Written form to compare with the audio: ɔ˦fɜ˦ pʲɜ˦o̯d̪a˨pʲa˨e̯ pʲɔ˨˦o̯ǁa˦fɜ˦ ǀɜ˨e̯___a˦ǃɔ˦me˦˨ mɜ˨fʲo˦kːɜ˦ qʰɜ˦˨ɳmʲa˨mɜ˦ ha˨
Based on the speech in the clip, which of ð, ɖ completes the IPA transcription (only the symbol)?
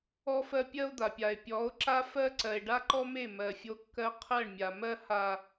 ɖ